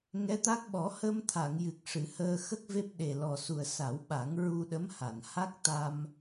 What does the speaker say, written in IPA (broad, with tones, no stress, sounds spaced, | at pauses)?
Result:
ŋ ɛ˧˥ t̪ a˦˥ k̚ ɓ ɔ˨˩˦ h ə˧ m t̪ʰ a˨˩˨ ŋ j ɨ˨˩ k̚ ʂ ɨ˨˩˨ h əː˧ x ə˦˥ k̚ v e˦˥ p̚ ɗ e˨˩ l ɔ˨˩ s u˨˩ ə̯ s a˨˩˦ w ɓ a˨˩˦ ŋ ɹ u˧ ɗ ə˧˥ m h a˨˩˨ n h a˦˥ k̚ t̪ a˧ m